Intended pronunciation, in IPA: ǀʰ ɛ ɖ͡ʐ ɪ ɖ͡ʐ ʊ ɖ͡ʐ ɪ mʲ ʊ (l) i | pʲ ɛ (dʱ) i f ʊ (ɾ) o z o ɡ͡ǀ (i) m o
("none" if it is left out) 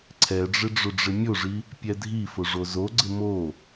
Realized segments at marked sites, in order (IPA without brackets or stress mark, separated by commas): ʐ, dʱ, ʐ, ɪ